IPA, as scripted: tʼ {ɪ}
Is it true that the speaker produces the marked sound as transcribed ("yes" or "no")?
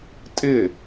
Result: yes